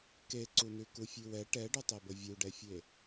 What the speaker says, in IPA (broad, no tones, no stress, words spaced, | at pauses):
keǀunʉ kufʲʉwɛ ʈɛɖɵtˤebə vʲuɖɛfʲe